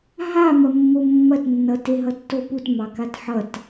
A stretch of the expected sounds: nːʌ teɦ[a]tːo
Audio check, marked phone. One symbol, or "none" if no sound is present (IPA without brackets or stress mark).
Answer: ʌ